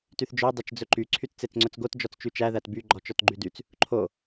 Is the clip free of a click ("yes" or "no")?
no